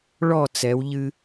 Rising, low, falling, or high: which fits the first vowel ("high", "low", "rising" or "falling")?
falling